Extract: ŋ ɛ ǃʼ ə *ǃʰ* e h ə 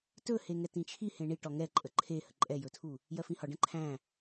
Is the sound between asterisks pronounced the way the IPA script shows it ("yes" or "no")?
yes